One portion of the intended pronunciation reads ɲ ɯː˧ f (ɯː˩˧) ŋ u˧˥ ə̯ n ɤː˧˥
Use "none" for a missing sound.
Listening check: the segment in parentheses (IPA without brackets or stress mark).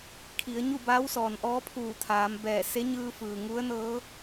ɯː˩